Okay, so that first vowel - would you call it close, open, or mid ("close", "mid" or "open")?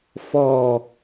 mid